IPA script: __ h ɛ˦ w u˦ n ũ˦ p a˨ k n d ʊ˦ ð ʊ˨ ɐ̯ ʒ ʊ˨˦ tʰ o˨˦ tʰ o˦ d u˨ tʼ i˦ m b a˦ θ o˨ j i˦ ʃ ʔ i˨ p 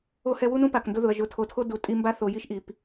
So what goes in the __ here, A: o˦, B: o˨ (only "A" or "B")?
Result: A